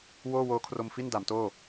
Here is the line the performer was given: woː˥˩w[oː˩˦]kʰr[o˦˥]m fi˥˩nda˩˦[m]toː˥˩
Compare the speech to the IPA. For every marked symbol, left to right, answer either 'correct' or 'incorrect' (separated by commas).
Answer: incorrect, incorrect, correct